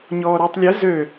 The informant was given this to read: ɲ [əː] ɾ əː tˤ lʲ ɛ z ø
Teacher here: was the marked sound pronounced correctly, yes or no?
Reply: no